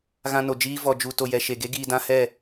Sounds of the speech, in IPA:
ɣ ã˧ n o˨ d͡ʒ iː˧ v ɔ˨ d͡ʒ u˨ t o˨ j ɛ˨ ʃ e˨ ɡ e˦ ɡ iː˧ d ã˦ h ɛ˦˨

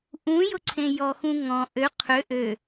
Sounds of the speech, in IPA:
ʔ ũ j ʊ ǀʰ ẽ j ɔ x ũ ŋ ɔ̃ ʔ ø qʰ ø ʔ ø

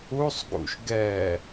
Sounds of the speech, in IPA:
u sˤ ɡ ṵ ʃ ɡ ɛ

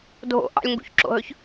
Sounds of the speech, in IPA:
dʱ o̰ ʔ ɑ̰ lʲ ŋ ɡ ṵ ç ǁ o̰ ɦ ɵ ç

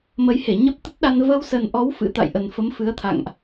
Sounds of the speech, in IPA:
m ə˨˦ j h e˧˩ ɲ ə˦˥ p̚ t̪ ə˦˥ t̚ ɗ a˧ n v ə˧ w s ə˨˩ n ʔ ɔ˨˦ w f ɨ̰˧˥ t̪ a̰˧˨ j ʔ ə˨˩ n f ə˨˦ m f ɨ˨˦ ə̯ t̪ʰ a̰˧˨ ŋ ʔ

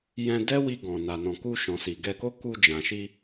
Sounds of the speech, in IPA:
j ɛ̃˧ d ɛ˦ w i˧ ɡ ɔ̃˨ n a˨ n ɔ̃˨ k u˧ ʃ ɔ̃˨ s i˨ ɡ ɛ˧ k o˦ k u˧ d͡ʒ ã˨ ʃ i˧

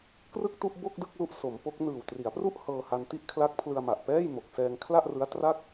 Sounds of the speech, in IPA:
k r ɯ˥˩ k̚ t u˥˩ ʔ b o˥˩ k̚ d ɯ˥˩ k̚ l u˦˥ ʔ s o˩˦ m p o˦˥ k̚ n ɯː˨˩ w t r i˩˦ a̯ p r u˥˩ ʔ h ɤː˧ h a˧ n t i˥˩ ʔ kʰ l a˦˥ k̚ pʰ l ɯ˧ a̯ m a˨˩ ʔ p ɛː˥˩ j m o˨˩ k̚ s ɛː˧ ŋ kʰ l a˥˩ ʔ r ɯ˦˥ a̯ t r a˥˩ k̚

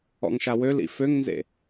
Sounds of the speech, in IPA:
ɔ̰ ŋ ʃ a w ø l ḭ f ø ŋ n z ḛ

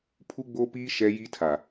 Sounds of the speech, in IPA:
pʰ u˦ ɡ͡b o˦ p iː˦ ʃ ɛ˦ j i˦ tʰ a˨

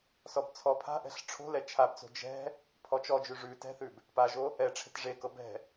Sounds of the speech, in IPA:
s ɔ b t͡sʰ ɔ pʰ a̤ ʔ ɛ̤ ɬ ʈ͡ʂʰ o̤ l ɛ t͡ʃʰ a b t͡s o̤ d͡ʒ ɛ̤ | pʰ ɔ t͡ʃ ɔ d͡ʒ ʉ ʐ ʉ t ɛ̤ θ ʉ b | p a ʒ o | ɛ ʈ͡ʂʰ e̤ t ʐ e k ɤ b ɛ̤

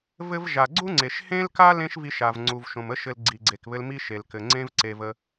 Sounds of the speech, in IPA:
v ɘ˧ v ʒ a˩ ɡ͡ǀ u˥ ŋ͡ǀ e˩ ʃ h ẽ˥ l k a˥ l ẽ˥ ʃ v i˧ ʃ a˩ v ŋ͡ǀ u˩ v ʃ õ˩ m ə˥ ʃ ɘ˧ l ɡ͡ǀ i˩ ɡ͡ǀ e˩ k β ɘ˧ l m i˥ ʃ e˩ l k ɘ˩ ŋ͡ǀ ẽ˥ v ǀ e˧ v ə˧

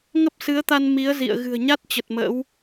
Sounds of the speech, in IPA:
ŋ ə˦˥ p̚ s ɨ˨˦ ə̯ t̪ a˧ n m i˨˦ ə̯ z ḭ˧˨ ə̯ ɣ ɨ̤˨˩ ə̯ ɲ a˦˥ t̚ t͡ɕ ə˨˩ t̚ m ə̰˧˥ w

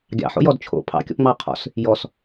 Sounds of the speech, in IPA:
ɡʲ ɑ̰ ħ o̰ j ɔ d t͡ʃʰ o̰ pʰ ɑ̰ kʲ ɔ̰ p ŋ͡m ɑ qʰ ɔ̰ s | j ɔ s

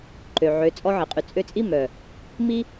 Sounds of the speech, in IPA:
ǃ ø˨ ʕ ø˨˦ t͡sʼ ɔ˧ ʕ i˨ qʼ y˨ t͡sʼ ø˧ t͡sʼ i˦ m œ˨ | m i˦

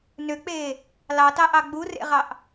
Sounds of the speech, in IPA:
n ø k͡p eː | l ɑ t ɑ ʔ ɑ ɡ͡b u r ḛ ʁ ɑ ʔ

